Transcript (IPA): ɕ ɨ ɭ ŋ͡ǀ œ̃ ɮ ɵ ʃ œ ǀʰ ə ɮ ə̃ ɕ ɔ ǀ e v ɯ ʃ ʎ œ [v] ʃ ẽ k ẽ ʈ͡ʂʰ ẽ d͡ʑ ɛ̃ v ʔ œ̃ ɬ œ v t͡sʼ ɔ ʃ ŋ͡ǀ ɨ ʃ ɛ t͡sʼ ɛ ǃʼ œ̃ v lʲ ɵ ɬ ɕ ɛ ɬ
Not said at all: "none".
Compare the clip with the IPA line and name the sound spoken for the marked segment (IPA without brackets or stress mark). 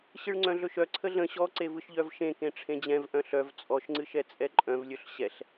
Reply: v